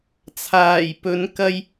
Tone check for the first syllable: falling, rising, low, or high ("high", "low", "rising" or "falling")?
low